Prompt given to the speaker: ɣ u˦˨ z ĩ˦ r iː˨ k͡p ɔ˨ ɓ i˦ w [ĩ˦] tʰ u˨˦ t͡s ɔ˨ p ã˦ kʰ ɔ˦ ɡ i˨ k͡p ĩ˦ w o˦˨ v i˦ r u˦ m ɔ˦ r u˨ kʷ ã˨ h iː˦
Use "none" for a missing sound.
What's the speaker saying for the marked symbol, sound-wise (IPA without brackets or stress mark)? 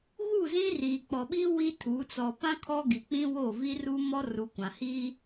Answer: i˦